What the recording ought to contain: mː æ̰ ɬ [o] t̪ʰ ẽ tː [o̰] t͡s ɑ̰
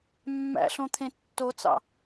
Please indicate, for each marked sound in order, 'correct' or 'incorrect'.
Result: incorrect: õ, incorrect: o

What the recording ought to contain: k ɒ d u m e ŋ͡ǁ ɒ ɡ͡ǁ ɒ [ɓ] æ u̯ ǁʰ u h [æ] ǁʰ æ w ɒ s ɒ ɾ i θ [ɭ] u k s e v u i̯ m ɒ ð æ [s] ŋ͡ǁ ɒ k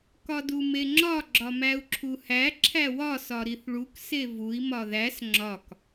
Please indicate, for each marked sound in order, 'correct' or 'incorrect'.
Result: incorrect: m, correct, correct, correct

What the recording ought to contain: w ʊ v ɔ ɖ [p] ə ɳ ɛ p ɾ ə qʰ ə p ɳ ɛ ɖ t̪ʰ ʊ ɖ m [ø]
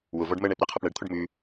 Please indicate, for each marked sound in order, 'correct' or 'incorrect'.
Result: incorrect: m, incorrect: ʉ

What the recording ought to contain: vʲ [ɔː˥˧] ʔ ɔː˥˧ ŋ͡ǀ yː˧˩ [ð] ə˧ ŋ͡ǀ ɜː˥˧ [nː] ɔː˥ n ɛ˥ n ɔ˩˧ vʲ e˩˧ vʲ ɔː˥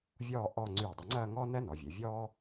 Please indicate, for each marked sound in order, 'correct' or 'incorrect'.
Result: correct, incorrect: dˤ, incorrect: ŋ

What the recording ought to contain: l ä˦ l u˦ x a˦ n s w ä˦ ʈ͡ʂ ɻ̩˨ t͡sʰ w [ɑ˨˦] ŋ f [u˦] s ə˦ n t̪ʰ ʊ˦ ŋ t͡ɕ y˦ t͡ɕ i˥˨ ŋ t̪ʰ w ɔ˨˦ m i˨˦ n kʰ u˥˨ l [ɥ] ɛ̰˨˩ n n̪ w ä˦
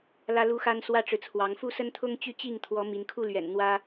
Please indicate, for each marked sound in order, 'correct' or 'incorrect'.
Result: correct, incorrect: u˥˨, correct

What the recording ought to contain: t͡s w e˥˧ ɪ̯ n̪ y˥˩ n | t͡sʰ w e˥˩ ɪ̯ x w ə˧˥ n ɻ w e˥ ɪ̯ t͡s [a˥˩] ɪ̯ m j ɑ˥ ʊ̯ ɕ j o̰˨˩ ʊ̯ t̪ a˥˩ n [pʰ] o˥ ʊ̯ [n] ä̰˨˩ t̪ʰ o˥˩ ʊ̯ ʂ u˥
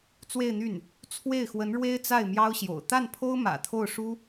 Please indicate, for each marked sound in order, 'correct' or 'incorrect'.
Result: correct, correct, incorrect: m

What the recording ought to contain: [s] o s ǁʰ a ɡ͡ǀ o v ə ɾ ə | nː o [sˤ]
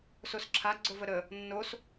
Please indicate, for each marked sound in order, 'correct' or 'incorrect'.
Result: correct, incorrect: s

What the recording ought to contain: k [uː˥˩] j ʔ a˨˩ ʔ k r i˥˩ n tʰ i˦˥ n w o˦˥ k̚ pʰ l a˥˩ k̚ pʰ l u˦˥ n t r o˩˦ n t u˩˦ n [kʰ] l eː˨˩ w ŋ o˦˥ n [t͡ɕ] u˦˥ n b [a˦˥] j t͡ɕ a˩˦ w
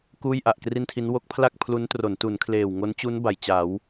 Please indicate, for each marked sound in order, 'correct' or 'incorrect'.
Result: correct, correct, correct, incorrect: a˩˦

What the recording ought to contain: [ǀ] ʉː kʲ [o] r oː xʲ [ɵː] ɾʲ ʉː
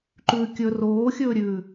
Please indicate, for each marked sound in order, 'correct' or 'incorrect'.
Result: incorrect: ǃ, incorrect: ɵ, correct

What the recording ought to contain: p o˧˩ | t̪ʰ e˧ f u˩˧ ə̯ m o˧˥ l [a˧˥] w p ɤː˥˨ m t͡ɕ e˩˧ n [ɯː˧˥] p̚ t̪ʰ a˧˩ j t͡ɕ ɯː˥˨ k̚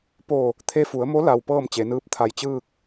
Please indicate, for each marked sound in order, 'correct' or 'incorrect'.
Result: incorrect: a˩, correct

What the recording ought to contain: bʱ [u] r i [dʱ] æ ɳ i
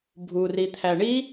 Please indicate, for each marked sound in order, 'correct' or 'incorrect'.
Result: correct, incorrect: t̪ʰ

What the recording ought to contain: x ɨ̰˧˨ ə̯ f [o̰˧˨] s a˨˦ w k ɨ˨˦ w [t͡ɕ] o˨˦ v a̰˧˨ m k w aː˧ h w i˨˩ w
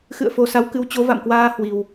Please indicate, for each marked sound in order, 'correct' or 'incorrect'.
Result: incorrect: o˨˩, correct

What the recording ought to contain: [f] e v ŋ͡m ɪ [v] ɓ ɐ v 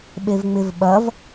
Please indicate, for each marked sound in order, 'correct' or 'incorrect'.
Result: incorrect: ɓ, correct

